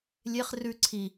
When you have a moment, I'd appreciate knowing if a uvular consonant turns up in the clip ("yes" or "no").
yes